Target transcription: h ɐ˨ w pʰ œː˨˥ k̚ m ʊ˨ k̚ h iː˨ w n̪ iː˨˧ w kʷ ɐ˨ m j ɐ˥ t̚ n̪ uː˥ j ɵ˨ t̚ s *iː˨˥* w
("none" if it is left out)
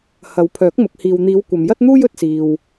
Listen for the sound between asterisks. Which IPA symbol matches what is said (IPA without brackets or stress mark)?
iː˨